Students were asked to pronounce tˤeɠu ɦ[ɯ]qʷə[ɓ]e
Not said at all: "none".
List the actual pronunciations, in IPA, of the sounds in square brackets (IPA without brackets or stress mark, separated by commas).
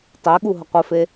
ə, f